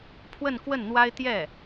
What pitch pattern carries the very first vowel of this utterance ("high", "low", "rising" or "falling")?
falling